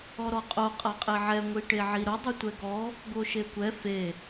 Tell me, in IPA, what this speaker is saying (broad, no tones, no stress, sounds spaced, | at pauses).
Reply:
ɔ ɾ ɔ qʼ o qʼ a qʼ e ʕ ɛ ŋʷ i ʈ e ʕ i ɾ ʊ dˤ ʊ tʷ ɛ ɡ ɔ | ɡ o ʃ e kʷ ɛ f e